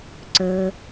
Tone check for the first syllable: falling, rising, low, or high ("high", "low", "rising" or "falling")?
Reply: low